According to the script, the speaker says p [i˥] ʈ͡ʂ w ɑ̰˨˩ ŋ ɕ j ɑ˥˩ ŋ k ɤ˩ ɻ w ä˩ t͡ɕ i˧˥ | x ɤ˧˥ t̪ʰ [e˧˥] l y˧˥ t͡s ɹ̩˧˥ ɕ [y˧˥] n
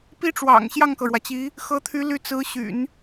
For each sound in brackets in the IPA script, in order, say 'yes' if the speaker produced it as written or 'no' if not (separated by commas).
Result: yes, no, no